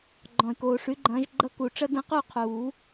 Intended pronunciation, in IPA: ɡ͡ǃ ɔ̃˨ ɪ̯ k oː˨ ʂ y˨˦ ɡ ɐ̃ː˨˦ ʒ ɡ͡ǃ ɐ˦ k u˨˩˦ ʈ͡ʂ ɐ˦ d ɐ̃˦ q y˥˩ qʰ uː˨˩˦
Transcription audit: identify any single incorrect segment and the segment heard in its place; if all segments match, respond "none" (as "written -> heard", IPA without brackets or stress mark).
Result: ɡ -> ɡ͡ǃ